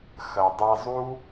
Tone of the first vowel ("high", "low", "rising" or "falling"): low